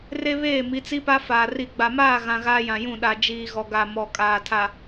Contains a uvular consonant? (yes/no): no